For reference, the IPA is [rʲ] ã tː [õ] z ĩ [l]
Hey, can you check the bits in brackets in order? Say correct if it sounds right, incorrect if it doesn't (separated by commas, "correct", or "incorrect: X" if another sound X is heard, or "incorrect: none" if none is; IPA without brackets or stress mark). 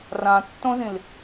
incorrect: r, correct, correct